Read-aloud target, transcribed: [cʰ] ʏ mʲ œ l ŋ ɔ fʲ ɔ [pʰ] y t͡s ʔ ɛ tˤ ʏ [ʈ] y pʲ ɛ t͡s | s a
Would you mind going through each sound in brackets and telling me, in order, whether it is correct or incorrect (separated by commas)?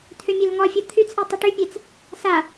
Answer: incorrect, incorrect, correct